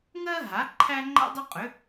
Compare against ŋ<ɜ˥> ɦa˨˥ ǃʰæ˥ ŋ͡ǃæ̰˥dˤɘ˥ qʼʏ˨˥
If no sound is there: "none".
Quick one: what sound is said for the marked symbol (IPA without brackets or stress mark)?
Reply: ɜ˥